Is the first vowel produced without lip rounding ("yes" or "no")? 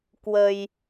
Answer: yes